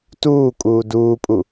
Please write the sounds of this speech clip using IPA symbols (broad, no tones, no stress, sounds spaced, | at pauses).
t uː kʼ uː d uː pʼ u